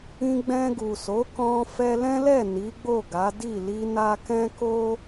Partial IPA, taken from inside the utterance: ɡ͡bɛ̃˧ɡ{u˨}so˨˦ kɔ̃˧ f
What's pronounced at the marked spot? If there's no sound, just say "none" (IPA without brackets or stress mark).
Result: u˨